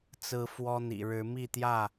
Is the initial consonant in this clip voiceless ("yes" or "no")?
yes